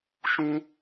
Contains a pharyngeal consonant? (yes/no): no